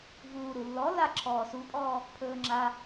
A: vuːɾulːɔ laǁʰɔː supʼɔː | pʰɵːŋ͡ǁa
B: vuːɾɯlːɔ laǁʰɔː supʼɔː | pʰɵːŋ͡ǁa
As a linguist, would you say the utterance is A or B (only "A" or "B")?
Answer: A